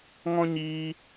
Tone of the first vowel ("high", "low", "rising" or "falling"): high